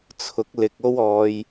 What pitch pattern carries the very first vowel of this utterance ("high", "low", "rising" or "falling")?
rising